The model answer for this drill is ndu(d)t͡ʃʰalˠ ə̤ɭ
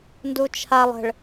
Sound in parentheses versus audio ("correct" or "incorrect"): incorrect